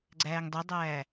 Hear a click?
yes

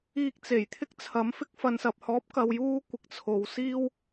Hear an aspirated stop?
yes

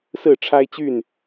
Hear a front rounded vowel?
yes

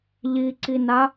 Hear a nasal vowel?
no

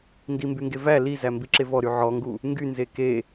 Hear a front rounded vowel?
yes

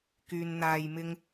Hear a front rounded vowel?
yes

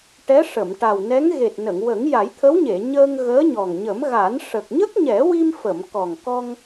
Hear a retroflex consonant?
yes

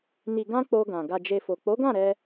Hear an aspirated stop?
no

